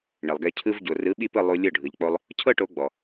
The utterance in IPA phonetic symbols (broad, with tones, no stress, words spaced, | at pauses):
ɳe˩lˠɡɛ˧ cʰɯ˧v ɟo˩rɯ˩˥ɓi˥˩pɯ˥˩ lˠu˧ lʲɤ˥˩ ɖʱɯ˩ʎk͡po˧lˠ | cʰɤ˥ʈo˩˥ ɡ͡bɔ˩